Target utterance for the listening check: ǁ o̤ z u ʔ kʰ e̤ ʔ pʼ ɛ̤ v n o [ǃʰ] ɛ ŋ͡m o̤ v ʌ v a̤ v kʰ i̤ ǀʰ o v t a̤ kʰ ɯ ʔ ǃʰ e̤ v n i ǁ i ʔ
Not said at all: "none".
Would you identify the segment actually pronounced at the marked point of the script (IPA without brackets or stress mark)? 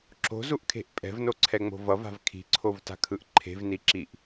ǀʰ